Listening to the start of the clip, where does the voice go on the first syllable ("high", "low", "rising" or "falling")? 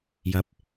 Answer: rising